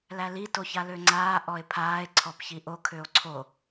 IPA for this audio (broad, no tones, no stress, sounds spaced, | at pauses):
l æ l i t o ç a l ø ŋ͡ǀ aː ʔ ɔ e̯ pʰ aː e̯ ǀʰ ɔ p ç i ʔ o kʰ ø o̯ ǀʰ o